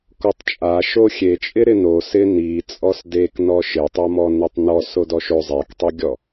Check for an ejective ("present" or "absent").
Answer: present